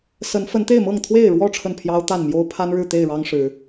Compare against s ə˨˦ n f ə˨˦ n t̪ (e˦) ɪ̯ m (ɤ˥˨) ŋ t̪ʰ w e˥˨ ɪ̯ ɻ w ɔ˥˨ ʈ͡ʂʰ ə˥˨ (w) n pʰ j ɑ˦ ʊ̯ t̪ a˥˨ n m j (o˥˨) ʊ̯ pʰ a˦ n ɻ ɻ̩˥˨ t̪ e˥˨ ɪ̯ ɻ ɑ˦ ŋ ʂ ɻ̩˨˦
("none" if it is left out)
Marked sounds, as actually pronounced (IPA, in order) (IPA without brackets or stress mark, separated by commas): e˥˨, ɤ˥˨, none, o˦